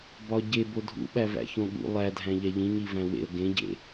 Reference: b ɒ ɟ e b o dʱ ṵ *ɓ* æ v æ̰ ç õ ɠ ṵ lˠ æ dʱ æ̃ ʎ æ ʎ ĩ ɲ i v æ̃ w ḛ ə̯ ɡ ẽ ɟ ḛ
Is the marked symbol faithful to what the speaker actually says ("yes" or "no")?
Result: yes